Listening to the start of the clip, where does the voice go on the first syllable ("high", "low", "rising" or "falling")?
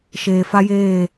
low